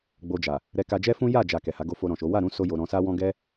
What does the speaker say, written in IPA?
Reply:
ɡ͡bo˧d͡ʒa˨ | ɾɛ˧ka˧d͡ʒɛ˦fũ˦ ja˦˨d͡ʒa˨ kɛ˨ha˨˦ ɡo˧fo˧ ɾɔ̃˨ʃo˨˦ wa˦˨ɾũ˨˦ so˦jo˧ ɾɔ̃˧sa˦wɔ̃˦ ɡɛ˦

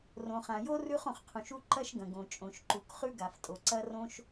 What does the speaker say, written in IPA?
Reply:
rõ˩χã˩jo˥ rʉ˥χõ˩χqʰũ˩ʃu˥ ǃɐ˥ʃɡɐ̃˩ɡõ˩t͡ʃʼõ˩ʃ ǃu˩kχʉ˥ ɡa˩ftʼo˩ ǀɐ˥rõ˥ʃ

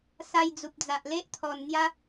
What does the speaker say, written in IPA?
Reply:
sa˧j d͡zu˨p̚d͡za˨ʔ le˦ʔt̪ʰɔ˨˩n n̪ja˦

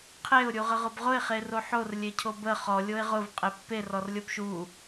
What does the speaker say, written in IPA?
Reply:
qʰeʊ̯ ɾʲuʁəʁʊbʁʊɪ̯ χeroħor lʲecʰobə χɔ lʲoɪ̯ʁʊv qʼepːe rɔrlʲobʃu

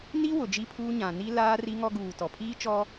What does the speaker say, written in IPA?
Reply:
ni˦ wʊ˨d͡ʒi˦pʰuː˦ ɲã˨ni˦laː˦ ri˦ŋɔ˦ɡuː˨tɔ˨ pʰiː˦t͡ʃɔ˦

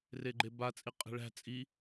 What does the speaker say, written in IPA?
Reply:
reɡ͡ǃeba t͡sʼiqʼe̤ɭæ̤ t͡sʼi

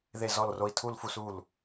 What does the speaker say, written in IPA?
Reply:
ðe˧˩zɔ˧˩lro˧˩i̯ tʰu˧˩lfu˧˩su˧˩l

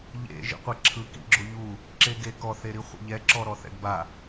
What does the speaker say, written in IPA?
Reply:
ʎḛ ʒḭqʷɛǁʰɯ kḭɡ͡ǁoʎu | ǁeɡekɔ θeɾiχʷḛʎɛ ǁɔɾɔθɛ̰ɡba

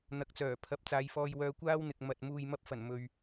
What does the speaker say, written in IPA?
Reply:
n̪ɐ˨k̚t͡sœː˨˩ pʰɐ˨˥p̚t͡saː˨˧jfɔː˧jwœː˧ kʷaː˥wn̪ɪ˨k̚ mɐ˨t̚ muː˨jmɐ˧p̚fɐ˨˩n mɵ˨ɥ

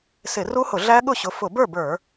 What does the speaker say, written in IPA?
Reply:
sɪ˧˩˧ru˦˥hʊ˧˩˧ ɮæ˦˥ɠʊ˥˩ɕʊ˨˦ fʊ˧˩˧bə˞˥˩bə˞˧˩˧

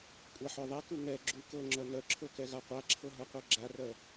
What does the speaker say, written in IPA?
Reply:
kʷʼaħœðˤɛku ŋɛ ɡ͡ǁu kɤŋ͡ǁœ nœǁʰɤ kɛɣaqʷaǁʰɤ ɦɤqʷɤɡ͡ǁarœ

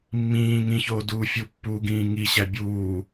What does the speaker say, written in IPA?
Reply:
mːĩː ŋĩçoːduː fʲupːuːɡĩː ŋiɕæ bʲuː

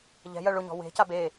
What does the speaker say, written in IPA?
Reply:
ʎɛ̤jɜ ɭʊ ɲɔ̤we̤ca be

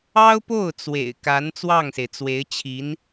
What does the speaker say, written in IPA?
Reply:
ɑ˥ʊ̯po˥˩ʊ̯ t͡swḛ˨˩ɪ̯ka˧˥n t͡swɑ˥˩ŋse˩ɪ̯t͡swe˧˥ɪ̯t͡ɕʰi˧˥n

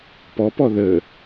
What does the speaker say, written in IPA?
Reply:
pɔpɔ ðə

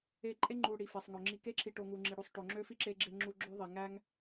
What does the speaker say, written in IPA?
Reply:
e˨ ǃʼe˥ŋ͡ǃu˨ ɽi˩fe˩sˤŋø˩ ŋ͡ǁi˨ke˦ǁʰi˨ʈo˨ ŋu˩ŋ͡ǁi˩ɽu˨sˤ ʈo˨ŋ͡ǁø˥fi˥ǁe˦ ɡ͡ǁe˦ŋ͡ǁu˦ ɡ͡ǁø˥ ðˤi˩ŋæ˥ŋ

